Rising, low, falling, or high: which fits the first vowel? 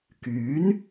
rising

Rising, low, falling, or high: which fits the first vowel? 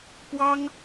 high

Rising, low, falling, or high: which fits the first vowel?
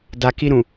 low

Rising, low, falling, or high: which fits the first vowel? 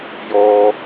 low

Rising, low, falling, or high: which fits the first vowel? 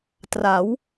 rising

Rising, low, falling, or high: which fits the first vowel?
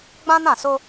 high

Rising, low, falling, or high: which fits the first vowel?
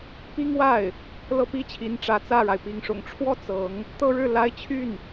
high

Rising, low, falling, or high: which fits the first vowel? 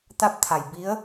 rising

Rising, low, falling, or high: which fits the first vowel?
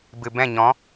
low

